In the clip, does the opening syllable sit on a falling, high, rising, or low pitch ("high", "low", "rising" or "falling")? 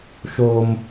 high